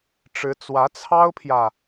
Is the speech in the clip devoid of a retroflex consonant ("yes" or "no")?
no